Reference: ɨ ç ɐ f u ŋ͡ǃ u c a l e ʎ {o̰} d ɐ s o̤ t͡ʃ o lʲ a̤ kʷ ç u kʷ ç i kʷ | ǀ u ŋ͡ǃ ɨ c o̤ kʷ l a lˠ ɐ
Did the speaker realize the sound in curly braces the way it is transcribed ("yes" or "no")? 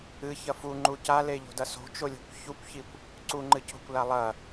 no